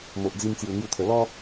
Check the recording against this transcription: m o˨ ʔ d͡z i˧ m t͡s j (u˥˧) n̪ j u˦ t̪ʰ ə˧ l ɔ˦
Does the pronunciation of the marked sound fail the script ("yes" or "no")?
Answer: yes